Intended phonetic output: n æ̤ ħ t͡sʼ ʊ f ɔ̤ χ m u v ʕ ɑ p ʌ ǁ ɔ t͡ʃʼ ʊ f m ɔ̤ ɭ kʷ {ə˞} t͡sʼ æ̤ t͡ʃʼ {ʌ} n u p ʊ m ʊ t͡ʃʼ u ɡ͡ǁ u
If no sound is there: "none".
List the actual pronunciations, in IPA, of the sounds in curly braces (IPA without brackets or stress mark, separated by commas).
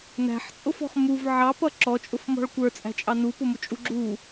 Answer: ə˞, ɑ